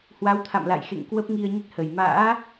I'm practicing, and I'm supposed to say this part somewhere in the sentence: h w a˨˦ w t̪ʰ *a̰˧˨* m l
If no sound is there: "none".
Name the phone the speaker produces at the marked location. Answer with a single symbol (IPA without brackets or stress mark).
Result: a̰˧˨